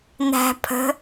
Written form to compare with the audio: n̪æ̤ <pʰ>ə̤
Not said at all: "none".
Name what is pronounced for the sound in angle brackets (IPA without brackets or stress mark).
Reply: pʰ